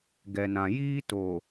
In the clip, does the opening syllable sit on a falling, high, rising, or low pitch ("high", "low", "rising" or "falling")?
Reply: low